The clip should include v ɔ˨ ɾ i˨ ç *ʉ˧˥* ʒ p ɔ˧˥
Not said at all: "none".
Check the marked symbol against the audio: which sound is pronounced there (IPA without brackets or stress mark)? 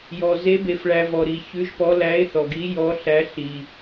ʉ˧˥